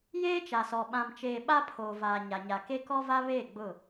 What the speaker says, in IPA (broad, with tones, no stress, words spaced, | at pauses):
jeː˦t͡ʃa˨sɔ˨ ɓã˨mt͡ʃeː˨ ɓa˦ pʰoː˨vaː˨ ɲa˨ɲa˨ke˦ kɔ˦va˦ βeː˦˨ɡ͡bʊ˦˨